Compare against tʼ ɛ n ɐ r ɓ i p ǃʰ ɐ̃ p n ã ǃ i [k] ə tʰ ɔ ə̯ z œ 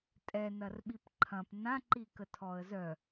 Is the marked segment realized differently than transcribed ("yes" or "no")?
no